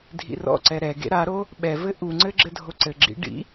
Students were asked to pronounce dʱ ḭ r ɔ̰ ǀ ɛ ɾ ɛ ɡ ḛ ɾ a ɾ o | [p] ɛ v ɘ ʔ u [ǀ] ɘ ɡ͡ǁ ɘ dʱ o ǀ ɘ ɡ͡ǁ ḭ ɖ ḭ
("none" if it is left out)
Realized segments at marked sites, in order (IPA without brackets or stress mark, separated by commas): ɓ, ŋ͡ǀ